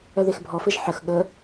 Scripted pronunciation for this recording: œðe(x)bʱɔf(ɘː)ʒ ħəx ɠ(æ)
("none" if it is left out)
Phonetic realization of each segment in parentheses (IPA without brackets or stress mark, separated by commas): x, ɘ, ə